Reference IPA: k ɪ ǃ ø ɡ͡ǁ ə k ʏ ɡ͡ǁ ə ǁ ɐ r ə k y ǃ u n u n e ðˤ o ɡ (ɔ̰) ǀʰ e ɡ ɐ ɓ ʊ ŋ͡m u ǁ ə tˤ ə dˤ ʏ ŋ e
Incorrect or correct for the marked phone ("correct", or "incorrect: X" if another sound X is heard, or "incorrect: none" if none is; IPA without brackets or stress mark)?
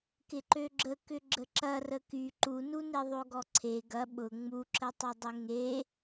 incorrect: ɔ